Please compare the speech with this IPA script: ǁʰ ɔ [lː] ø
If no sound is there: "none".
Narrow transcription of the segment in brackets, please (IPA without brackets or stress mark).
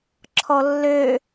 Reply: lː